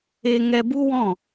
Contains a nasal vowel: yes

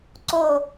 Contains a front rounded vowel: no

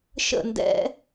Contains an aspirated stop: no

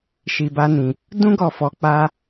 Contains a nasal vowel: yes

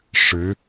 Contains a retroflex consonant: yes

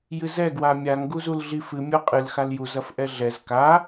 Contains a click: no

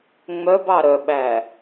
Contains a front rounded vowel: yes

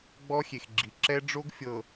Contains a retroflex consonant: yes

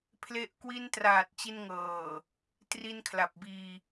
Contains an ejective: no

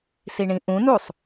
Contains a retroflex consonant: yes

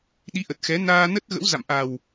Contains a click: no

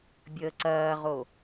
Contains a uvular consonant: yes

